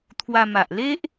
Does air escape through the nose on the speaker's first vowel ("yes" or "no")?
no